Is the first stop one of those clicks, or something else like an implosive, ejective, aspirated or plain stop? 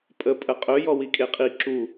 ejective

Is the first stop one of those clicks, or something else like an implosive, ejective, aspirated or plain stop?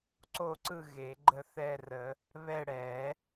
click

